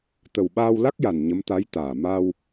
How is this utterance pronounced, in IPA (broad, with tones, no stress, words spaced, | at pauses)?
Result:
t̪ə˨˩wɓaː˧wla˦˥k̚ja˨˩n ɲə˧˥mt̪a˧˥jt̪aː˨˩ ma˧w